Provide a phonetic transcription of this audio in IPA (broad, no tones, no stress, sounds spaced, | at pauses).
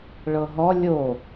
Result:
ɭ ɤ ɦ ɔ lʲ o